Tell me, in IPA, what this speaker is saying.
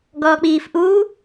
ɡɔːk͡piːf ʔuː

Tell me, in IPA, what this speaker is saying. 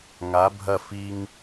ŋa˩˧ bʱɐ˧˩fi˧ŋ

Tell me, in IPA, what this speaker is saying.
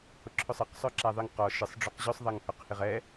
hʊǁʰʊsˤɪq sˤœǁaðˤɪŋqɔ ʃɪsˤ ɖ͡ʐʊqʑʊsˤ ðˤaŋhœqhɪʁɛ

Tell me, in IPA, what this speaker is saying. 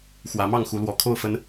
xwä˨˦mɑ˥˨ŋxu˨˦lwɔ˨˩ kʰo˥˨ʊ̯fə˨˦n

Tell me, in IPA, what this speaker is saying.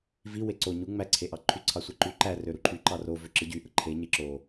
vi weǀo ɲu ŋ͡mæ ǀʰeʔɑǃʰy ǀʰɑsʷeǃy ǃæ røɾuǃʰy ǃɑro vøǁɯ ɟy ʔɯǃʰe ɲeǁo

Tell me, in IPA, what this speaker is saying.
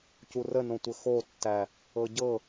curənõtʷɘ xotːæ | ɤɟɤ

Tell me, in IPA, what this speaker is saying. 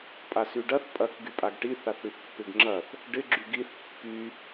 pʼasyɖɐθ pʼɐk ɡypʼaɡʈi θaθɽyθpːɪɡŋ͡ǁɐθ | ɖɪ ɡ͡ǁyɡiθ pːy

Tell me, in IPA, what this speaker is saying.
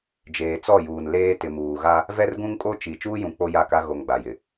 d͡ʒeː˨t͡sɔ˦˨juː˨n leː˦ tɪ˨muː˨ɣa˦ | vɛ˦rɡũ˦ŋkʼo˦ t͡ʃi˨ t͡ʃuː˦jũ˨ k͡po˦ja˦˨ka˦ ɣo˨ŋ ɡ͡ba˨jɪ˨

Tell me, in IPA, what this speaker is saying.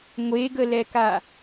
ŋʷeɡəlɛka

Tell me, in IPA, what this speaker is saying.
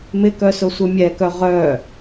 mɪkœ sʊsʷɪmʲɛkœ ʁœ

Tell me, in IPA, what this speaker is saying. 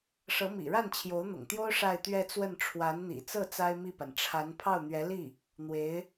ʂɤ˧˥mḭ˨˩ɻa˥˩n t͡ɕʰjo˧˥ʊ̯n̪ʊ̰˨˩ŋt̪jo˥ʊ̯ ʂa˥˧ɪ̯t̪ɥɛ˥˧t͡swə˥˩n ʈ͡ʂʰwa˧˥nn̪ḭ˨˩ t͡sɤ˥˩ t͡sa˥ɪ̯mi˥˩pa˩n ʈ͡ʂʰa˧˥n pʰɑ˥˩ʊ̯n̪ɥɛ˧˥li˥˩ | n̪we˧˥ɪ̯

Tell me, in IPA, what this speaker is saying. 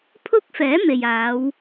pʰʊ˥k̚fɛː˨˥ me˨jaː˨˧w

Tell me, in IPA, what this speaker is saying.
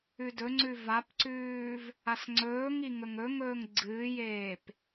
ʉdɵŋ͡ǀʉ vapǀʉːv | asŋ͡ǀɵːŋi ŋɵŋɵŋɵːŋ ɡ͡ǀɨːjeːp

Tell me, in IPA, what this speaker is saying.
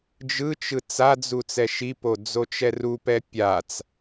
d͡ʒɯt͡ʃɯ t͡sad͡zu t͡sɛʃipo d͡zot͡ʃɛrupɛ pʲat͡s

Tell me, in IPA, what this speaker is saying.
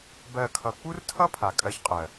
bɜ˦˨kʰʌ˧ k͡pu˦rtʰʌ˦ pʰa˨kʼɜ˧çqʼɜ˨

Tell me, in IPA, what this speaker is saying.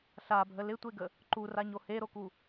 ɬabʱə lɪtʷeɡə | ǃuraɲo heɾoku

